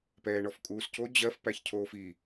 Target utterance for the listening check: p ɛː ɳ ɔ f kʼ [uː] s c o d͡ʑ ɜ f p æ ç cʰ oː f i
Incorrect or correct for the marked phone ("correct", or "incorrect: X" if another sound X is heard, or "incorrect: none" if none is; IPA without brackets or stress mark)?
correct